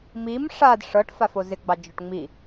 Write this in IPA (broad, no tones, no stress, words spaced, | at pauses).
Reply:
mim ʂad ʂɤʈ fafozɪɡ͡bɑ d͡ʒɔʈŋ͡mi